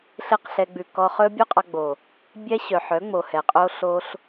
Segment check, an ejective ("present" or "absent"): present